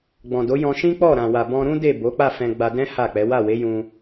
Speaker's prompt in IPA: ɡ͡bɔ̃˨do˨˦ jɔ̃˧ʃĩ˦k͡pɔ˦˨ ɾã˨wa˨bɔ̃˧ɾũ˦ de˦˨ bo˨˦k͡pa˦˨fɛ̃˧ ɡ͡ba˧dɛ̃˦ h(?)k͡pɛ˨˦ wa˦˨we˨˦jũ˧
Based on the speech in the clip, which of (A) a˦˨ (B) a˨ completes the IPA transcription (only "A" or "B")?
A